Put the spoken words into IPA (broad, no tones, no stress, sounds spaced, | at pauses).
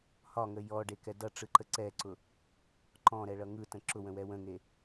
h ɒ ŋ ə j ɔ ɖ e k ɛ d ʌ ʈ͡ʂ ɯ ǃ ə ǀ ɛ ǀ ʊ | ǃ ɔ̃ ɾ ɛ ɭ ʌ ŋ ɯ t ə̃ ǁ ʊ w ə̃ w ɛ w ə̃ ŋ e